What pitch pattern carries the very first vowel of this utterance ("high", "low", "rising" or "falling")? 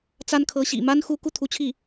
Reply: high